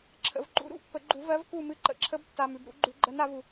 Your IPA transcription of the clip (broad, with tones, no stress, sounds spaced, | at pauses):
ǁʰ ə̰˨ v ǃ ṵ˨˦ ɾ ṵ˦˥ pː ə˨˩˦ ɡ͡ǃ u˨˩˦ v ɜ˨˦ v k u˥˨ m ɨ˥˨ ǃ ə̰˨˦ ǁʰ ə˦˥ b tː a˨ m ʉ˨ b ɾ ṵ˨˩˦ ɡ͡ǃ ʉ˨˩˦ ɡ͡ǃ ɜ˨˦ n a˨˩˦ v u˨